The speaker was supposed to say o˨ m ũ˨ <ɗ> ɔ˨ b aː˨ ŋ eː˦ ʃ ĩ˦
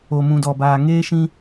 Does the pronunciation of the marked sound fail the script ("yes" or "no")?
yes